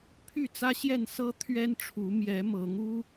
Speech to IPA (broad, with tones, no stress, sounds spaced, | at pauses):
pʰ y˥˨ t͡s ä˦ ɕ j ɛ˥˨ n s ɤ˦ t̪ʰ ɥ ɛ˦ n ʈ͡ʂʰ u˨˦ m j ɛ˨˦ m ɤ˨˦ ŋ u˦